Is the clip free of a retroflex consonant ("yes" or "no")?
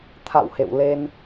yes